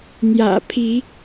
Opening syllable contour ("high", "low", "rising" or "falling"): low